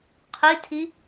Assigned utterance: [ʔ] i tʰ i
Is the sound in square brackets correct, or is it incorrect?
incorrect